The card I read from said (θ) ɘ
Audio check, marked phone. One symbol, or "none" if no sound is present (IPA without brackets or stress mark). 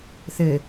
θ